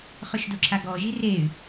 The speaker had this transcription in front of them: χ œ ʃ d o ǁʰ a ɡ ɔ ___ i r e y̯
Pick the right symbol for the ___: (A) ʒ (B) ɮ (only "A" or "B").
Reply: A